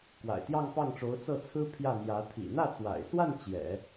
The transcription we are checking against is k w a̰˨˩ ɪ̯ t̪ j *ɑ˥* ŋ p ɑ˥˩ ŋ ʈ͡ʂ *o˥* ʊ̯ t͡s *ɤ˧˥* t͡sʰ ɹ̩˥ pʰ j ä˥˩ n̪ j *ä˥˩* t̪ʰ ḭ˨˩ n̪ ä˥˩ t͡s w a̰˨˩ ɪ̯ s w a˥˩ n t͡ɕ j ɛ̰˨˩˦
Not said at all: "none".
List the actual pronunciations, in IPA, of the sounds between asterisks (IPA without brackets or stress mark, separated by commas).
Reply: ɑ˥˧, o˧˥, ɤ˥˩, ä˧˥